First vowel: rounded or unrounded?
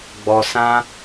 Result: rounded